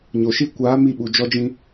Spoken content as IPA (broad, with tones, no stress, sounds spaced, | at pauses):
ɲ o˨ ʃ i˦ kʷ aː˨˦ m i˦˨ ɓ u˨ d͡ʒ ɔ˦ d͡ʒ ĩ˦